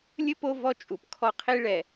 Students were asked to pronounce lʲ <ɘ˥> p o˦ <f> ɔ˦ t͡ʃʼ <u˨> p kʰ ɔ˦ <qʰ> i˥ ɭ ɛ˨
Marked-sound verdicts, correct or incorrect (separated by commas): correct, incorrect, correct, correct